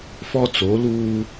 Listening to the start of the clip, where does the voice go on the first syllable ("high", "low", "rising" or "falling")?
high